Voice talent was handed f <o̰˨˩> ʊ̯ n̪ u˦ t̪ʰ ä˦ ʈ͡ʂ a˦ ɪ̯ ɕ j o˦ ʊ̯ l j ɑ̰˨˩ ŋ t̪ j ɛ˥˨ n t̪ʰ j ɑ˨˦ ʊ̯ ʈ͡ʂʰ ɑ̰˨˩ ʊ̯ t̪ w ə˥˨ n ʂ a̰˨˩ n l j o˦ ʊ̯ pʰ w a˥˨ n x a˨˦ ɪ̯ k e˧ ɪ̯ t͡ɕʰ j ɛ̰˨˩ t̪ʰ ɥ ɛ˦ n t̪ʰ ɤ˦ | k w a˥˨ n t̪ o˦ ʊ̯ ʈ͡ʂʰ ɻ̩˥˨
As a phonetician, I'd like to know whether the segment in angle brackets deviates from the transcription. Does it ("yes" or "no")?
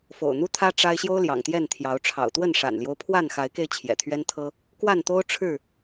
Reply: no